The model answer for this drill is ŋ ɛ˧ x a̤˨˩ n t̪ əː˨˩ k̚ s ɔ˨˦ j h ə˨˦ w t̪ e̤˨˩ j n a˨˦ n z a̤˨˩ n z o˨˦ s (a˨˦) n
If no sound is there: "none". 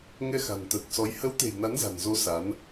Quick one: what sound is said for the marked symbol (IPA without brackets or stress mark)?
a˨˦